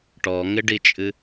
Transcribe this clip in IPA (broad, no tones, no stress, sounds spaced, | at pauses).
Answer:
ʈ ɔ ŋ ɪ ɖ i t͡ʃʼ ɨ